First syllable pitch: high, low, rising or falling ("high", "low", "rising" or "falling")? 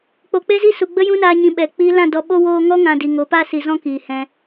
low